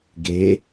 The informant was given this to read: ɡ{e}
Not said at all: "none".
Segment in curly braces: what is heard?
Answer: e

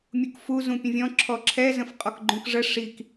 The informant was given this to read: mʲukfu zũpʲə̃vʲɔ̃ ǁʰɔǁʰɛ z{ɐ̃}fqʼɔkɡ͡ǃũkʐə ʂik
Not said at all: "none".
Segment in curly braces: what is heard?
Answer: ə̃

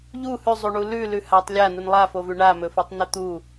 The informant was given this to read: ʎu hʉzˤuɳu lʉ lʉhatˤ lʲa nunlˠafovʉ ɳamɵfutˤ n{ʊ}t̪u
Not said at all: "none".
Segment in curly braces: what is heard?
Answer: ɵ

